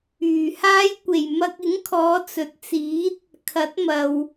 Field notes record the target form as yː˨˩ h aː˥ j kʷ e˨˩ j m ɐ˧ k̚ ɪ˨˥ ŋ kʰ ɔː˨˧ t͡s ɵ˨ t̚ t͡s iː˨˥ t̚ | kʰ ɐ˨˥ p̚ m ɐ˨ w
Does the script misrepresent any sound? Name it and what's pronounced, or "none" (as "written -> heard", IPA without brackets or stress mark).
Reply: p̚ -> t̚